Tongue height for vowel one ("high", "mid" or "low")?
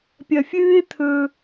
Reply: low